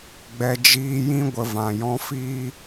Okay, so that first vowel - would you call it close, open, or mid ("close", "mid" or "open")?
mid